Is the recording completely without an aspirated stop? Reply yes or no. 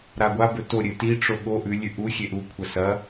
no